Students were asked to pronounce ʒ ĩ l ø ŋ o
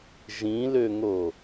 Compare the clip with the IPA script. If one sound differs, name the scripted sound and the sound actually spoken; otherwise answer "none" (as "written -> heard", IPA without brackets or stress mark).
none